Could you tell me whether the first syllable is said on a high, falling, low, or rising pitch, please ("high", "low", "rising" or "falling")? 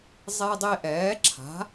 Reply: high